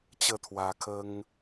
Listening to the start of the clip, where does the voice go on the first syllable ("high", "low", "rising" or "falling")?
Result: falling